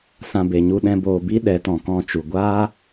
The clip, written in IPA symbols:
s ã˧ b e˨ ɲ u˧ ɗ ɛ̃˧ b oː˨ b i˦ ɗ ɛ˨˦ t ɔ̃˨ k ɔ̃˦˨ t͡ʃ u˨ ɡʷ aː˦

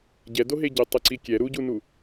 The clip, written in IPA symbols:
ɟ ɛ d o ɦ e ɟ e tˤ e ǀ i kʲ ɛ ɾ u ɟ u n u

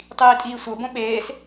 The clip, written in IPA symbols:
tˤ iː tʼ iː sʷ ɤ b õ ɓ eː s

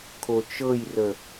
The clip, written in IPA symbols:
kʰ o t͡ʃ ɤ j r ə

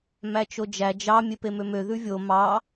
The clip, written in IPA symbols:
m æ t͡ʃ o d͡ʒ æ d͡ʒ ɑ mʲ e p e m ø m ø ð ʉ vʲ o m ɑ

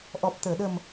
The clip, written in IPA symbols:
ʔ ɔ˨˩ p̚ t̪ əː˨˩˨ ɗ ə˨˩ m

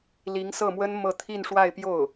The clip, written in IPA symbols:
l i˧˥ ŋ s ɤ˥˩ m w ə˥ n m ɤ˥˧ t̪ʰ i˥˧ n ʂ w a˥˧ ɪ̯ p j o˥˩ ʊ̯

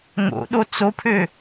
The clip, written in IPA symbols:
ŋ o̰ ɗ o t͡s o pʰ ø

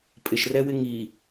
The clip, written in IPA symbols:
pʼ ɪ ʃ r ɛ w ɪ ŋ i

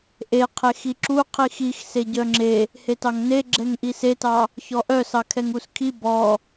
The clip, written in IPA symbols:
ʔ e qʰ e x i ǁ u qʰ i x i x s e ɟ œ ŋ͡ǁ e | h e t ɑ ŋ n e ɡ͡ǁ ɛ ŋ ʔ i s e t ɑ | ç ɔ ʔ œ s ɑ kʰ ɛ ŋ u s kʰ i b ɔ

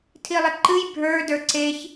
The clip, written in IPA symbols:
tʰ i lˠ ɪ ǃ ɨ j bʱ ə˞ d ə˞ ǀ e ç

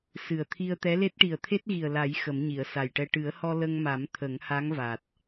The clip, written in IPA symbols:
s ɨ˨˩ ə̯ t̪ʰ i˧ ə̯ t̪ ɛ˧˥ l e˦˥ t̚ ʈ i˨˩ ə̯ t̪ʰ e˦˥ t̚ ɣ i˨˩ ə̯ l a˨˩˦ j x ə˨˩˦ m ɲ i˨˩˨ ə̯ s a˨˩ j ʈ ɛ˧ ʈ ɨ˨˩˦ ə̯ h ɔ˧ l ə˧ ŋ m a˨˩˦ m t̪ʰ ə˨˩˦ ŋ h a˧˥ ŋ v a˨˩ t̚

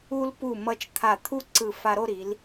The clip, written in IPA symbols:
u˧ l p u˧˩ m ʌ˧ t͡ʃ t̪ʰ a˧˩ t̪ʰ u˥ ǀ ɯ˧˩ f a˧ ɾ o˥˧ ɾ i˩˧ l

